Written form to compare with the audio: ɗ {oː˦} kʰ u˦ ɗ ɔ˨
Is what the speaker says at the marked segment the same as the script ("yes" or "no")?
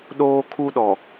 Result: yes